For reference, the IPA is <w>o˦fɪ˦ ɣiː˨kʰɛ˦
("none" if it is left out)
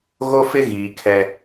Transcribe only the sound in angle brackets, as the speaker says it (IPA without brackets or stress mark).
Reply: ɣ